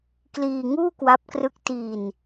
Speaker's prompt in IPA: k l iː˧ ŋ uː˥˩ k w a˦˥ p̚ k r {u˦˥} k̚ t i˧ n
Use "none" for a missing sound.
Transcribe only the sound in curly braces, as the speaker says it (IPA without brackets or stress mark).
ɯ˦˥